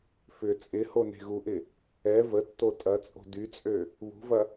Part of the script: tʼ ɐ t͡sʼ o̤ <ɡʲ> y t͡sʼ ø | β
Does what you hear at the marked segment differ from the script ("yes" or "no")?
yes